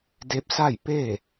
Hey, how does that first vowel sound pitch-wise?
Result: rising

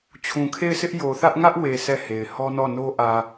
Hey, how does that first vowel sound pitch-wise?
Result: low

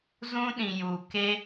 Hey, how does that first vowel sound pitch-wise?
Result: high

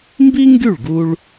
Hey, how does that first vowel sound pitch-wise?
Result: high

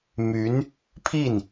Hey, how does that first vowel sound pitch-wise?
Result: rising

